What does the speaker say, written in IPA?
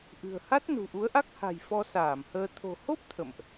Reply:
ʔɨ̤˨˩ə̯ha˦˥t̚ nṳ˨˩ʔu˨˦ə̯ʔa˦˥k̚ ha̤˨˩j fɔ˧saː˧˩mhəː˧ t̪ʰo̤˨˩ho˦˥p̚ t̪ʰə̰˧˨mʔ

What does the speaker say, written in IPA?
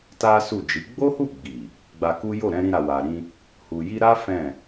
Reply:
ta˦su˦˨d͡ʒi˨˦ ɡ͡bo˦hu˦˨ɡ͡bi˨ | ɡ͡ba˧ku˦ jo˦˨ɾɛ̃˧ɾĩ˧ ɾa˨wa˨ɾĩ˧ | hu˨ji˧ɾa˦ fɛ̃˦˨

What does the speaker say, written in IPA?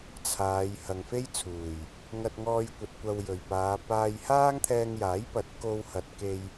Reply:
t͡sʰaː˨˧j hɐ˨ŋfe˥jt͡sʰuː˨˩j | ŋɐ˧t̚ŋɔː˧jkʷɐ˨t̚ kʷɐ˧wjɵ˨˩ɥpaː˨˧ paː˧j haː˥ŋt̪ʰɛː˧ŋjaː˨˥jpɐ˨˥t̚ ko˧whɐ˨t̚ke˧j

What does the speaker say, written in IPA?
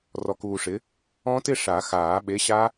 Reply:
rɔ˧kuː˧ʂɪ˨˥ | ɔ̃˦˥tɪ˥˧ʂa˨˩˦ xaː˨˩˦ɓe˨˥ɕa˦˥

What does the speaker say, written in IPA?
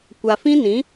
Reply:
kʷa˨fĩ˦nĩ˨˦

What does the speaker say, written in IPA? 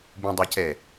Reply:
bũdˤacɛ

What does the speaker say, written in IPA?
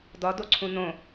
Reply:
dɒdoǀʰũ nõ

